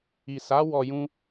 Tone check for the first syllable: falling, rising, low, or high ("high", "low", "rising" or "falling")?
low